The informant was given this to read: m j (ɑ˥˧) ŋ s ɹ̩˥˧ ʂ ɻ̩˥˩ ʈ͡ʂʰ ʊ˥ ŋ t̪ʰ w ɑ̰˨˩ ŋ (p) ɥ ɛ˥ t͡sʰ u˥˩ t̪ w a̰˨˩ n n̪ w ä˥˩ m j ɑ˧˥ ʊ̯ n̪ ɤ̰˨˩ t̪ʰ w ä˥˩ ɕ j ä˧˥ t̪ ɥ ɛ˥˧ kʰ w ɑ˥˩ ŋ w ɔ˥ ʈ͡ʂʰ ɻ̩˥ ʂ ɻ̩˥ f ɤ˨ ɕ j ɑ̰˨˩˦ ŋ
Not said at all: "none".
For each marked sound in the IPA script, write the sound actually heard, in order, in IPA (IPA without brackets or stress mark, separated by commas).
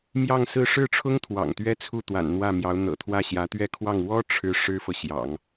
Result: ɑ˥˧, t̪